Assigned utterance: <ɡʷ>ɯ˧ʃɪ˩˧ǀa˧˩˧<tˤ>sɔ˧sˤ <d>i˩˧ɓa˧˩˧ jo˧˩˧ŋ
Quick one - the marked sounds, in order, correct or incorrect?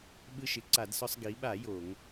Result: incorrect: ɓ, incorrect: d, incorrect: ɡ

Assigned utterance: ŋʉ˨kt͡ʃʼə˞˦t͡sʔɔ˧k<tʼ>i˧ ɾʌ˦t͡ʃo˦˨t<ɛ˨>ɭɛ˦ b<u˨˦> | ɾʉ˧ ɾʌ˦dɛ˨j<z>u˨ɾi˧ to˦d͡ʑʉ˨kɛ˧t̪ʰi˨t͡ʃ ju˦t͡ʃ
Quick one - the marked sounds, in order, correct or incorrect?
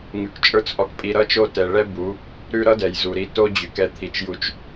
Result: incorrect: pʼ, correct, correct, correct

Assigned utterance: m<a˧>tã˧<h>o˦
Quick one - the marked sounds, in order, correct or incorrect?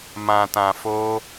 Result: incorrect: ã˧, incorrect: f

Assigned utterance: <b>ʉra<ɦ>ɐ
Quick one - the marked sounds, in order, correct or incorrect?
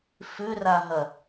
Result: incorrect: f, correct

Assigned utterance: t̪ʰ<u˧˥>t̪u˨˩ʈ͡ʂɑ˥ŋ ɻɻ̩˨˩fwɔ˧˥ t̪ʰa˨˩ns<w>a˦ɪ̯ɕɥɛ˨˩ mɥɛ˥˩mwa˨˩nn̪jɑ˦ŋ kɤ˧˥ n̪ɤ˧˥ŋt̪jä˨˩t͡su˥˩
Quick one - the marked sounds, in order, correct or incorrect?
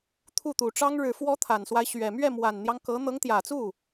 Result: incorrect: u˥˩, correct

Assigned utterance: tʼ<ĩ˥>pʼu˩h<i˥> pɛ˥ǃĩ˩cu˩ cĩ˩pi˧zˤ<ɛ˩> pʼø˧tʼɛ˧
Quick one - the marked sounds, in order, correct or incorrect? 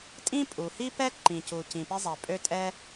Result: correct, correct, correct

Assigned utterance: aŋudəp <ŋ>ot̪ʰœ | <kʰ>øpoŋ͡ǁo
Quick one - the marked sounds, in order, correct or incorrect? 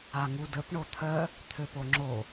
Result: incorrect: ɳ, incorrect: t̪ʰ

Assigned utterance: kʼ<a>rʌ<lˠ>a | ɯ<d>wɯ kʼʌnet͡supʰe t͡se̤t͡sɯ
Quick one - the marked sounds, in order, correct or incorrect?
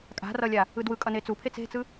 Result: incorrect: a̤, incorrect: lʲ, correct

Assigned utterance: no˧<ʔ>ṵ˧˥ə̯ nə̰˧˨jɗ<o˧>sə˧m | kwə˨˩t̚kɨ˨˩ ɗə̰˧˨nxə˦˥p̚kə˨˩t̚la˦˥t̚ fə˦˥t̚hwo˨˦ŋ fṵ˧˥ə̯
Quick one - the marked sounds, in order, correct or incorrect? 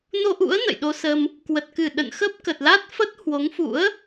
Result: correct, correct

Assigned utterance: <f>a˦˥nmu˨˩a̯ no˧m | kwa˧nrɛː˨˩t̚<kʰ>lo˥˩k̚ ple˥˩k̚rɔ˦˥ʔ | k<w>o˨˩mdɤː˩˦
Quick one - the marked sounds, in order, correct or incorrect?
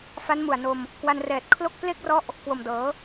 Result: correct, correct, correct

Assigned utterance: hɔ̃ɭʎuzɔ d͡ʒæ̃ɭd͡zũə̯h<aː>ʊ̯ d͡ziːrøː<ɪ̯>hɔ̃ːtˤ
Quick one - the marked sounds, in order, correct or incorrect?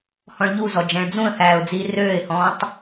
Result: incorrect: æː, correct

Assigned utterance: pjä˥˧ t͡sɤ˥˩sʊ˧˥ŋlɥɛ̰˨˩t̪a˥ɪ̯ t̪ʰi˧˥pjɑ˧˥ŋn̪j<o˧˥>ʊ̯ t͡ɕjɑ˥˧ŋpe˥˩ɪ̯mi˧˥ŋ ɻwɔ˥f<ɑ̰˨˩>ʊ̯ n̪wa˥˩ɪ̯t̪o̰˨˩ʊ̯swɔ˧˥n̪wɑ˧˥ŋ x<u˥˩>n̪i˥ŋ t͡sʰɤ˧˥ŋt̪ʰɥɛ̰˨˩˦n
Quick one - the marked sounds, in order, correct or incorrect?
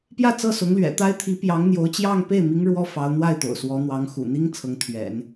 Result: correct, incorrect: ɑ˧˥, incorrect: ṵ˨˩

